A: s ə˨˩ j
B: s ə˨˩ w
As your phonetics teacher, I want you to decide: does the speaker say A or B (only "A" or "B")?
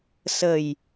A